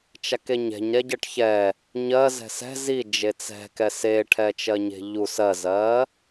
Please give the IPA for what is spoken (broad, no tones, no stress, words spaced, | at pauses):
t͡ʃakeɲɛ̤ɲɾɛ ɟɜʈçɛ | ɲɜ zɛ̤sɛ̤ zi d͡ʒet͡sɛ̤kɛ se ʈʰɛt͡ʃɜɲe̤ʎus ɜzɜ